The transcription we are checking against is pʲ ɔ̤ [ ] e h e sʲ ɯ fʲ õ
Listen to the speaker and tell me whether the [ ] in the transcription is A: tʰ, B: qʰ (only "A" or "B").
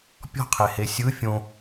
B